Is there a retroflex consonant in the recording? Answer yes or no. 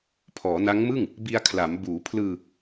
no